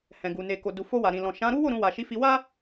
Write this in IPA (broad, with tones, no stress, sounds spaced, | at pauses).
h ɛ̃˨ ɡ u˨ n e˨ k o˨ d u˨ f o˧ w a˨ ɾ ĩ˨ l ɔ̃˨ ʃ ã˨˦ ɾ u˦ w o˦˨ ɾ ũ˧ w a˨ ʃ i˨˦ f i˧ w a˦